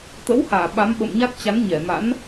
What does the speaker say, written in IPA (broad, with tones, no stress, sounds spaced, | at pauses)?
t̪ ə̰˧˥ w h aː˧˩ ɓ a˨˦ m ɓ ə̰˧˨ m ɲ a˦˥ t̚ t͡ɕ a˨˦ n ɲ ɛ˧˩ m a̰˧˥ n